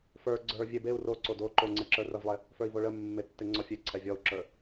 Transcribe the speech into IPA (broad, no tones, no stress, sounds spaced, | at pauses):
f ə˞ ɡ͡ǀ ə˞ vʲ e b e u̯ r o ǀ o d o ǃ o ŋ͡ǀ e ǁ ə˞ r ə v lˠ e | f ə˞ i̯ v o ɭ ə mː e tː e ŋ͡ǀ ɔ fʲ e ǀʰ ɛ vʲ ɔ u̯ ǁ ə˞